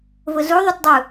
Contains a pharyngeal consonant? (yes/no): no